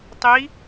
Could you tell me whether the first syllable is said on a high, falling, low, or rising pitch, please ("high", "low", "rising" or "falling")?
rising